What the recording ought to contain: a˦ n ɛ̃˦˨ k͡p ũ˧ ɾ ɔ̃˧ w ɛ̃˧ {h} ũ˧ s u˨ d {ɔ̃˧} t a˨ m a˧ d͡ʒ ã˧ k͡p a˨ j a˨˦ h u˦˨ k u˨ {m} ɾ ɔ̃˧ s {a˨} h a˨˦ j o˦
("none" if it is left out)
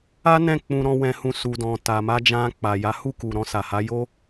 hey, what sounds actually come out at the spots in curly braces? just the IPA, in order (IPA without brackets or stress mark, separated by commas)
h, ɔ̃˨, none, a˨